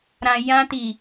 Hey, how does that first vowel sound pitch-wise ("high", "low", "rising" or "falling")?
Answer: low